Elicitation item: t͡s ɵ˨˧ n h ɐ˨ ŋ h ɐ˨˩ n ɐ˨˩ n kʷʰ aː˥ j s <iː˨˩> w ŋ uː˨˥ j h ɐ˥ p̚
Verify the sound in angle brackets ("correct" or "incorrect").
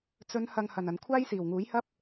correct